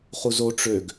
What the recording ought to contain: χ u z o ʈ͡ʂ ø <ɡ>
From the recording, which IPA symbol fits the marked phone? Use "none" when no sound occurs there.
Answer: ɡ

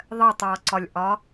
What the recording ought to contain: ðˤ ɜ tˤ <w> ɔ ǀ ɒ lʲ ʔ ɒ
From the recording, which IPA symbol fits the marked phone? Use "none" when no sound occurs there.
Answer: w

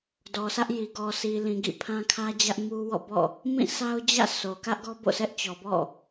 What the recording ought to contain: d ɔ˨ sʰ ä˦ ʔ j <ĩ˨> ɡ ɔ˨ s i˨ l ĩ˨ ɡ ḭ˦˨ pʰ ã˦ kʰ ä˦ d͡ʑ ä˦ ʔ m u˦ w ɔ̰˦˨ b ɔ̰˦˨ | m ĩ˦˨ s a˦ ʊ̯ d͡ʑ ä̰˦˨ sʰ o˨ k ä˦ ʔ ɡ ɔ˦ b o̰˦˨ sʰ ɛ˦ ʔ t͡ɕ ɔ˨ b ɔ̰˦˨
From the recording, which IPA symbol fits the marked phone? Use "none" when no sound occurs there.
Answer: i˨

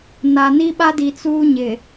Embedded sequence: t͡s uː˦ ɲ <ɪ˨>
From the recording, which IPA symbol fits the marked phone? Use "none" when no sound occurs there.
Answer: ɪ˨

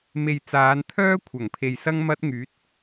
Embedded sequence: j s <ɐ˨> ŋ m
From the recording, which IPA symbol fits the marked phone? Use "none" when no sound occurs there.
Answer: ɐ˧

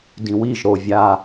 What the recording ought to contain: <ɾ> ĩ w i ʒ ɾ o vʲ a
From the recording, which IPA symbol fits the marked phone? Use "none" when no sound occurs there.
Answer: d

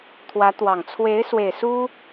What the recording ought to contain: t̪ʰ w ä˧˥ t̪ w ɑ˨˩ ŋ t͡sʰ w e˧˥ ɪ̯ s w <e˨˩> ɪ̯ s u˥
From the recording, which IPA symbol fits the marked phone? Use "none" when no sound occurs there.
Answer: e˨˩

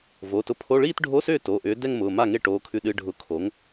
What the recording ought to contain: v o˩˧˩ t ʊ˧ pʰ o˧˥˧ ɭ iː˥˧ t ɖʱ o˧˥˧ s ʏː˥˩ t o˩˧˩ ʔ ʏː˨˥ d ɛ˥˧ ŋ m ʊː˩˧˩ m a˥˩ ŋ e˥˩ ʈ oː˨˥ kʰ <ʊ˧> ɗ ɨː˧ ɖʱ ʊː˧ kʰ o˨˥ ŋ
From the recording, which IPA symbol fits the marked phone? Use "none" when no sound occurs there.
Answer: ʉ˧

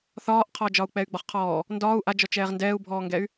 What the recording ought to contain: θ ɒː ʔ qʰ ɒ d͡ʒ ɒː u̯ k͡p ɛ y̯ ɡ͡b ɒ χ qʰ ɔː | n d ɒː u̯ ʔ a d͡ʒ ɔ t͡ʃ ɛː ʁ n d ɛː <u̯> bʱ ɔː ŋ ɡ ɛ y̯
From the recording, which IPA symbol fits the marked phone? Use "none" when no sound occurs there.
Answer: u̯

